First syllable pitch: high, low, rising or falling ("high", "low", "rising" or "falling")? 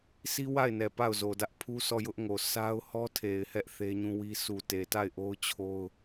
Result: high